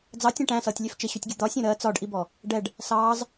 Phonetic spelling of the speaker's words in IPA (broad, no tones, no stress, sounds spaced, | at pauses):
d͡z ɑ tʲ æ̃ ʈ æ̃ s ʌː tʲ lʲ ɛ f t͡ʃ ɪ ɕ u tʲ ɡʲ ʊ d̪ ɒ sʲ ɔ̃ ɾ ɜ t͡s ɒ ɖ ʔ i b ɔ | ɖ ɛ ɖ | s ɑː z